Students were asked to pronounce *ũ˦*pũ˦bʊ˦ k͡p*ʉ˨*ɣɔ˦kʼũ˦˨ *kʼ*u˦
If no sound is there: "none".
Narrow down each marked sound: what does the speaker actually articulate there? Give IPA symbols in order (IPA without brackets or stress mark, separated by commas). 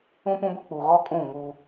ũ˦, u˨, ŋ